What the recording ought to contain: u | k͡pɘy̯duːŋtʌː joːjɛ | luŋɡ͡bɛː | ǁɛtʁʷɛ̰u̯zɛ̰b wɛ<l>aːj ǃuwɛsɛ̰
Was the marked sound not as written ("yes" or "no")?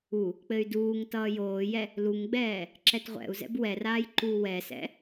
yes